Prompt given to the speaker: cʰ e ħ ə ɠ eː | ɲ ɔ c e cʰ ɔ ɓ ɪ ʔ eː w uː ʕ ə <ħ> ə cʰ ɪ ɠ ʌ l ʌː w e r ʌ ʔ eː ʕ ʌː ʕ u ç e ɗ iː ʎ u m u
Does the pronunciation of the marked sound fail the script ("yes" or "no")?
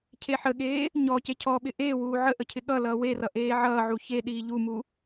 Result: yes